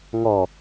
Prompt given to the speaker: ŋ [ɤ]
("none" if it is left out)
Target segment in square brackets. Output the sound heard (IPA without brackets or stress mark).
ɔ